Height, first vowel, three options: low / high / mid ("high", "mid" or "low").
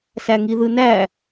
low